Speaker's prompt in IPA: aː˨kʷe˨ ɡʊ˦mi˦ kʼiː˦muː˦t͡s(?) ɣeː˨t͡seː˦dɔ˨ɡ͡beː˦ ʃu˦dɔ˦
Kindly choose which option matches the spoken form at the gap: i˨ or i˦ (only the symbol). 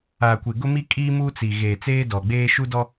i˨